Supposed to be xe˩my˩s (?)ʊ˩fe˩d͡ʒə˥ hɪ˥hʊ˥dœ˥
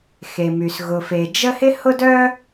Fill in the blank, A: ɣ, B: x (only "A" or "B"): A